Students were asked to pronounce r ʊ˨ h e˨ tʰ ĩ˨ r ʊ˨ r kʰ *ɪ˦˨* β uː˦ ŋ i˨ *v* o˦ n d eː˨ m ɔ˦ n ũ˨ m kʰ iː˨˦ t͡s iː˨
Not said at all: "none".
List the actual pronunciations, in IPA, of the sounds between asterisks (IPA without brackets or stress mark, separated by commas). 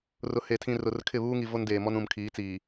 ɪ˦˨, v